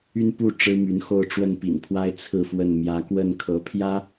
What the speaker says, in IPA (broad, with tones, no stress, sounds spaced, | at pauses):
y˥˧ n p u˥˩ ʈ͡ʂ ɻ̩˥ m y˧˥ n x o˥˧ ʊ̯ ʈ͡ʂ w ə˥˩ n p ḭ˨˩ n pʰ w a˥ ɪ̯ t͡sʰ ɹ̩˥˧ f w ə˥˩ n m j ä˧˥ k w ə˥˩ n kʰ ɤ˧˥ pʰ j ä˥